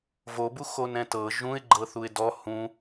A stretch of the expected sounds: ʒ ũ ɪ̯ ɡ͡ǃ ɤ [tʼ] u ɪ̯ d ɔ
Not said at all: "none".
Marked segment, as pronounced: θ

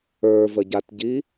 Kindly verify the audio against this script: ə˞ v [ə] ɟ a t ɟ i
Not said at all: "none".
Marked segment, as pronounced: ə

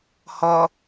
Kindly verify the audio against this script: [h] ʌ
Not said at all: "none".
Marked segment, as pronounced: h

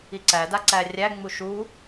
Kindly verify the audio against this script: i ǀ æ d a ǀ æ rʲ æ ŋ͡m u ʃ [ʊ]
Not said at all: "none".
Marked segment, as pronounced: u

